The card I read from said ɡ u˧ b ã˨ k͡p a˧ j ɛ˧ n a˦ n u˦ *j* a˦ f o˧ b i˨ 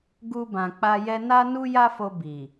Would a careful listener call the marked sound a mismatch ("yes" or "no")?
no